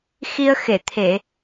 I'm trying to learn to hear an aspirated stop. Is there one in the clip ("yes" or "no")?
yes